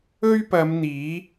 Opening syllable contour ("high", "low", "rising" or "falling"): high